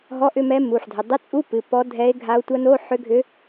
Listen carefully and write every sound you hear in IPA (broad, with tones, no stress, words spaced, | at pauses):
ɦɔ˧˥˧ʔʏ˧˥˧mɛ˧˥ mu˩˧˩ħdʱʏ˩˧˩ dˤɨ˧˥˧t͡sʼu˧˥˧pɨ˩˧˩ pɔ˧˥dʱɛ˧˥e̯ɡʱa˧˥o̯ tʷɐ˧˥no˧˥˧ ħʏ˧˥ɡʱʏ˧˥